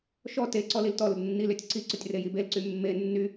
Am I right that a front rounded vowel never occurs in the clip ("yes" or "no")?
no